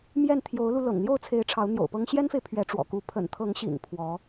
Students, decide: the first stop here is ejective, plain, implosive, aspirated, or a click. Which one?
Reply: aspirated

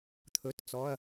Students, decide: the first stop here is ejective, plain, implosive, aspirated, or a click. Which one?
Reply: aspirated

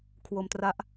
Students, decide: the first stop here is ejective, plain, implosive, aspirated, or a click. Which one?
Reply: aspirated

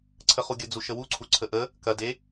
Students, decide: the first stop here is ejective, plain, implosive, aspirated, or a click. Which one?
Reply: click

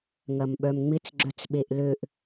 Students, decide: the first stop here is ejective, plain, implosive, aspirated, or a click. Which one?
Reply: implosive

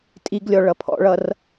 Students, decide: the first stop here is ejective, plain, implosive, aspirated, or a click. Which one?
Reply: ejective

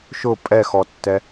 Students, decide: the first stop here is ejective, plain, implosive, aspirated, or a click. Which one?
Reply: ejective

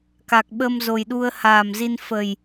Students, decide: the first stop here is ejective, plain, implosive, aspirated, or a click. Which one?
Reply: plain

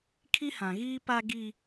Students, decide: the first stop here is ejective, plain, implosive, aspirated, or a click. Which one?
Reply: aspirated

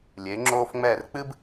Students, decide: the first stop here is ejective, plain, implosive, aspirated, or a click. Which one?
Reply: click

